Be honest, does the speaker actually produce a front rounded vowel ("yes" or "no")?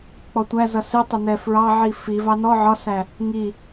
no